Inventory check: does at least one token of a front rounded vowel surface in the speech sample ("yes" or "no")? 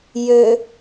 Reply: yes